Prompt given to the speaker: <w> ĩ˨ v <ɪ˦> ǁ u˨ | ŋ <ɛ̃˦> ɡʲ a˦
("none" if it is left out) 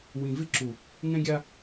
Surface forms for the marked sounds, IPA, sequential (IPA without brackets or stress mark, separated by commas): w, ɪ˦, ɛ̃˦